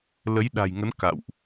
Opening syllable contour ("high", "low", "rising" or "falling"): rising